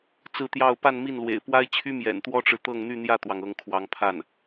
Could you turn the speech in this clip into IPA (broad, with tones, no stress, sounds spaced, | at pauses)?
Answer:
t͡s ɹ̩˥˧ t̪ j ɑ˥˧ ʊ̯ p a˥˧ n m i˥˩ n l w ḛ˨˩ ɪ̯ p w a˥ ɪ̯ t͡ɕʰ y˥ m j ɛ̰˨˩ n t̪ w ɔ˥ ʈ͡ʂ ɻ̩˨ t̪ ɤ˥˧ ŋ n̪ y˥˧ n̪ j ä˥˩ t̪ w ɑ˩ ŋ ɤ˧˥ ŋ kʰ w ɑ˧˥ ŋ pʰ a˥˩ n